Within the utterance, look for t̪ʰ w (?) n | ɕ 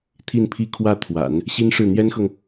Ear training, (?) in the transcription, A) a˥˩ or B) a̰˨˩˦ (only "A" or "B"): B